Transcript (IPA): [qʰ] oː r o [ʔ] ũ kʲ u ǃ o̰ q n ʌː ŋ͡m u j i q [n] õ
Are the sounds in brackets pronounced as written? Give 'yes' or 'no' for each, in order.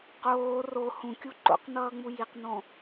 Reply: no, no, yes

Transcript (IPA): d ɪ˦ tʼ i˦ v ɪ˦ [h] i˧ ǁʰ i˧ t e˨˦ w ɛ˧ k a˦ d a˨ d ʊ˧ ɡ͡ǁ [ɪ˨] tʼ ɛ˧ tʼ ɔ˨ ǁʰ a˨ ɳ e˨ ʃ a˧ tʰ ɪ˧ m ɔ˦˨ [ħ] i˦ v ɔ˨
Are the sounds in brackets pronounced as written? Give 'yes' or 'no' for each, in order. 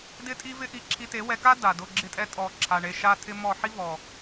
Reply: no, no, yes

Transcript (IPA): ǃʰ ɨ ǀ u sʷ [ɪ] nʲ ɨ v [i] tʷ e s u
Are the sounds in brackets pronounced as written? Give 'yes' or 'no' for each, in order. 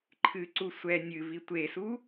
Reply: no, yes

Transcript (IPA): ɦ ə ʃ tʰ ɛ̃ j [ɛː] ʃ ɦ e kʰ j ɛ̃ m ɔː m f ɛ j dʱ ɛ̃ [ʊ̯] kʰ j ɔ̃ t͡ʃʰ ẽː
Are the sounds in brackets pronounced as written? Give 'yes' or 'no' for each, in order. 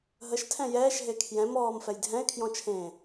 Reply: yes, no

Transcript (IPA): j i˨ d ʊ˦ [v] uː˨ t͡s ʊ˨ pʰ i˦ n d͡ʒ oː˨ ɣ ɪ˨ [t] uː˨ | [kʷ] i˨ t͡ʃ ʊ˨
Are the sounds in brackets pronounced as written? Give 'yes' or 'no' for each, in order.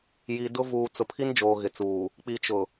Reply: yes, no, no

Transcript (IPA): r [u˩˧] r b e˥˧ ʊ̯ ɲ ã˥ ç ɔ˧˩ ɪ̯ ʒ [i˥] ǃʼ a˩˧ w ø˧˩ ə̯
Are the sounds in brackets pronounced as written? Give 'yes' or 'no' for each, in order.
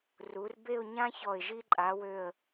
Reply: yes, yes

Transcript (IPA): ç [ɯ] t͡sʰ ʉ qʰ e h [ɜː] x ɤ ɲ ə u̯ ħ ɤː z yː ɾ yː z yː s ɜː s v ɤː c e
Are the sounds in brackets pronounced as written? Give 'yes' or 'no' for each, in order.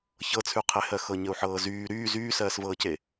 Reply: no, no

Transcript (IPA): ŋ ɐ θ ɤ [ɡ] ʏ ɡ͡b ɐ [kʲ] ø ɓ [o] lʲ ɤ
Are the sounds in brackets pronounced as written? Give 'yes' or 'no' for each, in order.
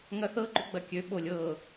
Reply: no, yes, yes

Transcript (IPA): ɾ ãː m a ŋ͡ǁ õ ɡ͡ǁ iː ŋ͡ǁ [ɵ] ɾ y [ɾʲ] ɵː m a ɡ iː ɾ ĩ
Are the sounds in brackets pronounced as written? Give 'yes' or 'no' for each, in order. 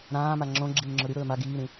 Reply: yes, no

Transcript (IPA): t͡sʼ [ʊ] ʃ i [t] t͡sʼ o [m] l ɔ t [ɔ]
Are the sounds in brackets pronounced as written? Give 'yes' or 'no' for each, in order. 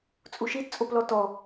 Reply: no, yes, no, yes

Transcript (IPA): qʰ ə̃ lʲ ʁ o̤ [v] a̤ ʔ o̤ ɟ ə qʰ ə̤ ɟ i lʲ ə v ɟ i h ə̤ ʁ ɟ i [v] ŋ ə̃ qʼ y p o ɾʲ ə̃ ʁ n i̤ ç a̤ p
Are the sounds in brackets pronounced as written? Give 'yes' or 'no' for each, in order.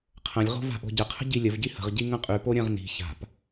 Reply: yes, no

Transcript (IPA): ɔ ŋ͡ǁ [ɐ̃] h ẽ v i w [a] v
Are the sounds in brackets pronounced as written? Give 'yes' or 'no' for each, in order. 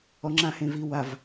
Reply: no, yes

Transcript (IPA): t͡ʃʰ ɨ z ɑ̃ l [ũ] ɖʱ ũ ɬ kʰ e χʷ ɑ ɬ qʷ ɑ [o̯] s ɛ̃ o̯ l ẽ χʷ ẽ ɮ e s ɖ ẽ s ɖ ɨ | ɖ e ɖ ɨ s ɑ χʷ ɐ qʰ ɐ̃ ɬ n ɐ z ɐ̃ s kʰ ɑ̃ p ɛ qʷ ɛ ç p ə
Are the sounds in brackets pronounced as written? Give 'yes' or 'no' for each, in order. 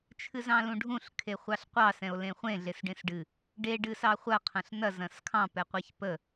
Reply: yes, no

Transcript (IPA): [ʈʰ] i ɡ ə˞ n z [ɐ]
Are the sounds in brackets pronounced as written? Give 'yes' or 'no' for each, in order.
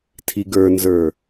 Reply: no, no

